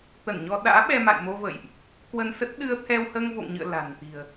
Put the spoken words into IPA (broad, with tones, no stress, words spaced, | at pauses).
t̪ə˧˩nɲɔ˧ ɗa̰ː˧˥ɓɛ˧ma̰˧˨jmo˧ və̰˧˨jʔ | kwə˧nsə˦˥t̚ ɗɨ˧ə̯t̪ʰɛ˧w həː˧ŋvo̰˧˨ŋɲɨ̰˧˨ə̯ la̤˨˩n t̪i̤˨˩ə̯